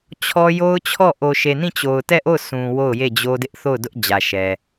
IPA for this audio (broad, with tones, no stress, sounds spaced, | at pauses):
t͡ɕʰ ɔ˦ j o˦ ʊ̯ t͡ɕʰ ɔ˦˨ ʔ o˨ ʃ e˨ n ĩ˦˨ t͡ɕ o˨ ʊ̯ t ɛ˦˨ ʔ o˦˨ ʊ̯ sʰ ũ˨ w o˦˨ ʊ̯ j e˦˨ d͡ʑ o˦ d ɪ˦ ʔ θ o˦˨ ʊ̯ d ʊ˦ ʔ d͡ʑ ä˨ ʃ ɛ˨